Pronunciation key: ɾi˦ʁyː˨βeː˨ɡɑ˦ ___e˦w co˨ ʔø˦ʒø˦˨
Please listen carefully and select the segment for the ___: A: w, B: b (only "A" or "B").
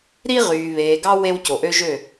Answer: A